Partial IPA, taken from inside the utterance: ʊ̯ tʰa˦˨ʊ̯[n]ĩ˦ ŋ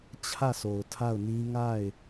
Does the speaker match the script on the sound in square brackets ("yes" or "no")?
yes